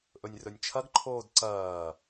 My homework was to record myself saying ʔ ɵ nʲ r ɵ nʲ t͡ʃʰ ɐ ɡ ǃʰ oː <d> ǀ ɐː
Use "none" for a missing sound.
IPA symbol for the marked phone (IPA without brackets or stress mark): d